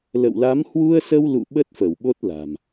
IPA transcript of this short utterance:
l ə̰˧˨ w l a˨˦ m h w u˧ ə̯ s ə˧ w l ṵ˧˨ ɓ ə˦˥ t̚ f ə˧˩ w ɓ o˦˥ t̚ l a̤˨˩ m

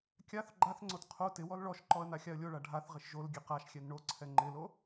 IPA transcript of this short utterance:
kʲ a θ ɡ͡ǃ a θ ŋ͡ǀ o t qʰ o t ɪ w ɔ l ɭ ɔ ʃ ǃ ɔ ə̯ n a xʲ a ə̯ lʲ o ɭ a ɖʱ a θ ʁ ɪ ʃ ʒ o l ɡʲ ɛ q a ʃ xʲ ɛ n ɳ o ǀʰ ɛ ŋ͡ǃ ɪ l o

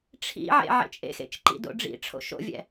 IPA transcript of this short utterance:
ʈ͡ʂʰ ḭ ʕ ḛ ʕ ḛ t͡ʃʼ ḛ x ḛ t͡ʃ ǃ ḭ d o̰ ɖ͡ʐ ḭ ʈ͡ʂʰ o̰ ʃ o̰ vʲ ɛ̰

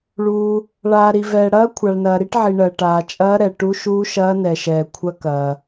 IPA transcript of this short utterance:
ɭ uː˨ | ɭ aː˨ ɾ i˨ v ɛː˨ ɽ ɐː˦˥ kʷʰ a˨ ɭ n ɐː˨ ɾ i˦˥ ʈ ʕ i˨ ɳ ɜ˨ ʈ aː˨ t͡ʃʼ ɐː˦˥ ɾ ɛ˨ ʈ u˦˥ ʃ uː˦˥ ʃ ɐː˦˥ n ɛ˨ ʃ ɛː˨ kʷʰ ɐ˦˥ k ɐː˨

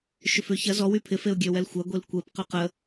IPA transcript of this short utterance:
ʃ ʏ f ø ç ɐ z ɔ w y pʰ ɪ f e ʊ̯ ɡʲ ø w ɛ l xʷ a ɡʷ e l kʷ ɛ p q ø q ə

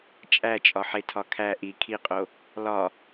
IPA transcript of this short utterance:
t͡ʃʼ æ t͡ʃʼ ɒ ħ e tʰ ɒ kʰ æ ʔ i kʰ i qʼ o | l ɒ

